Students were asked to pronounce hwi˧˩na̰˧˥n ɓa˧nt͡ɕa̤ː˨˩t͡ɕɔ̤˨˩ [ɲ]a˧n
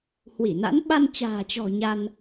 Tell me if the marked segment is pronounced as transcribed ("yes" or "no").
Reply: yes